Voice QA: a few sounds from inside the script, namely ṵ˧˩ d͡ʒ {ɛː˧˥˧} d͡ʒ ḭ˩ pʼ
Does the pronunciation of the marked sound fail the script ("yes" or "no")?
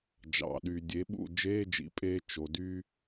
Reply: yes